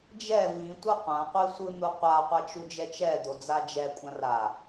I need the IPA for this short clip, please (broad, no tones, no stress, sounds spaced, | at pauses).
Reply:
d͡ʒ ɛ v ĩ tʷ ʌ qʷ ã qʷ i sʷ ɯ n̪ u qʷ a qʷ a t͡ʃ u d͡ʒ ɛ t͡ʃ ɛ d̪ o d͡z a d͡ʒ ɛ kʷʼ ã r a